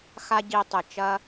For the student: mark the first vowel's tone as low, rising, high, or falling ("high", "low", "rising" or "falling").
high